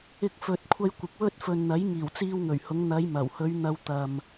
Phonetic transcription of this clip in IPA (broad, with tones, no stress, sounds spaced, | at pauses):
ɪ˥ k̚ f ɵ˧ t̚ kʷʰ ɐ˥ j kʷ ɪ˨ k̚ w ɵ˥ t̚ f ɵ˨ n n̪ ɐ˨˥ j ŋ iː˨˩ w t͡s iː˧ w ŋ ɵ˨˩ ɥ h ʊ˨˧ ŋ n̪ ɐ˨˧ j m ɐ˨˩ w h ɵ˨˧ ɥ n̪ ɐ˧ w t̪ ɐ˨ m